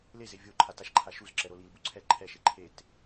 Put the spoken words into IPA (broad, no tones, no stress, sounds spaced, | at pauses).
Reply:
l e z e vʲ o ǃʰ a t a ʃ ǃʰ a ʃ u z ǁ ɛ ɾ o l i l b u ǀʰ ɛ ǃʰ ɛ ʃ e ǃʰ e t